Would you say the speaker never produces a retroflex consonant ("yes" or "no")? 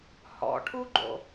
no